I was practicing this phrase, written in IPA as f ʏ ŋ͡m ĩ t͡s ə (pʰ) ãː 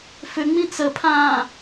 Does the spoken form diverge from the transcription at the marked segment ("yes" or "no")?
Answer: no